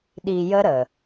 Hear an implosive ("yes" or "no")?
yes